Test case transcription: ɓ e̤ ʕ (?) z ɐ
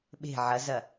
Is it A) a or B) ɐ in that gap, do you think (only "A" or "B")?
B